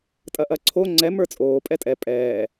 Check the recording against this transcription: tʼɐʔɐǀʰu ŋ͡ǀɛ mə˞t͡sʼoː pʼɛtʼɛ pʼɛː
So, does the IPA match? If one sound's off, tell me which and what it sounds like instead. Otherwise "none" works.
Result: u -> o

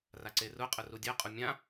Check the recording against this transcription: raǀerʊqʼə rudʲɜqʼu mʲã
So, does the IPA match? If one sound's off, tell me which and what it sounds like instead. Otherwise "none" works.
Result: none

